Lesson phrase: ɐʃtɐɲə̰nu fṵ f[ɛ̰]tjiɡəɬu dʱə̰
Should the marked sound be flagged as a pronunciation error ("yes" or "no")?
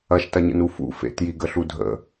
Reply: yes